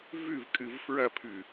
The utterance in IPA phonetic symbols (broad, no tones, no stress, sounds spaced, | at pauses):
v ʉ v kʼ ɨ v f ɹ ɐ pʰ ʉ